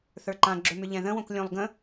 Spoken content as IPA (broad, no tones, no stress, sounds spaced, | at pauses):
θ ə˞ ǃ ã ɡ͡ǁ ɵ m ʏ ʎ ɛ̃ ð ə̃ w õ k lʲ õ lˠ ɡ ə̃